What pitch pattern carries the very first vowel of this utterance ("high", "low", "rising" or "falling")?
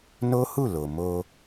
high